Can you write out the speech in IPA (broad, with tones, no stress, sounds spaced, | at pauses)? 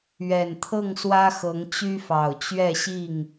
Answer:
ɥ ɛ˨˩ n t̪ʰ ɤ˥˨ ŋ s w ä˦ x ɤ˨˦ ŋ t͡ɕ y˦ f ɑ˨˩ ʊ̯ t͡ɕ ɥ ɛ˥˨ ɕ i˥˨ ŋ